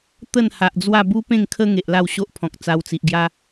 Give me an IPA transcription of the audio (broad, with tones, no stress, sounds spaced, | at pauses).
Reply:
t̪ ə˥˧ n h a˨ ʔ d͡z w a˥˧ b u˦ p ẽ˥˧ ŋ kʰ ə˦ ŋ e˨ ʔ l a˥˧ w ɕ o˦ ʔ pʰ ɔ̃˨ k̚ t͡s a˧ w t͡s i˨ ʔ ɡ j a˦